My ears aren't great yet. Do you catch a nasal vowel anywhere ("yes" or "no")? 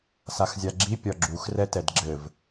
no